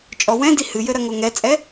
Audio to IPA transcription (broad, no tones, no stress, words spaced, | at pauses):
t͡ʃʼɔwɛ̃di hɨjɘ ɾɐŋoŋɛt͡sʼɛ